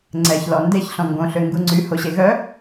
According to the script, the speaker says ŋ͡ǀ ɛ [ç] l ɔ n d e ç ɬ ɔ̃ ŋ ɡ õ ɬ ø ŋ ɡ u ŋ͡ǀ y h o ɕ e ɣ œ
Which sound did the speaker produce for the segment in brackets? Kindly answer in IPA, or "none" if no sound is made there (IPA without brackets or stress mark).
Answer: ç